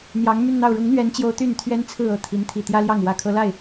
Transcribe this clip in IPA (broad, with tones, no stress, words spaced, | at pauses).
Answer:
n̪jɑ˧˥ŋmy˥˧nn̪ɑ˥˩ʊ̯ ɻʊ˧˥ŋn̪ɥɛ˧˥nt͡ɕjo˧˥ʊ̯ t̪y˥˩nt̪ʰɥɛ˥nt͡sʰɹ̩˥˧ ɤ˥˩t̪ʰi˧˥n t̪ʰi˨˩t̪jä˥ljɑ˥˩ŋ wä˨˩kʰɤ˧˥la˥˩ɪ̯